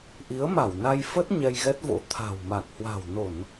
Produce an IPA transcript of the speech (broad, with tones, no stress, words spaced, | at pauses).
ʔi˨˦ə̯ma˧˩wna˧jfə˦˥t̚ ɲɛ˧jɣɛ˦˥t̚vo̰˧˥ t̪ʰa̤˨˩w ma˨˩k̚hwa̤˨˩wno˧˩˨n